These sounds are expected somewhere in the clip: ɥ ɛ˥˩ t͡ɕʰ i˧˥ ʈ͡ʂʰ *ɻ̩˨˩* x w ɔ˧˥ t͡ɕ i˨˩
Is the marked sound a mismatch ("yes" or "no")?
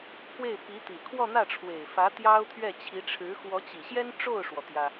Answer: yes